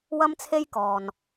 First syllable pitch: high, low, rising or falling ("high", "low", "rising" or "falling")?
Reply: high